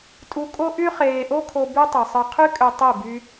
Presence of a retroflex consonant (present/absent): absent